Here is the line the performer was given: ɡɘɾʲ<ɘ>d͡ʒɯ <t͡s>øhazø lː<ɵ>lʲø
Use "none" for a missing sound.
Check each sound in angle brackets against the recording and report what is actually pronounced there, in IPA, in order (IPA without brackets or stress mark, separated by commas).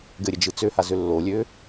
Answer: ɘ, t͡s, o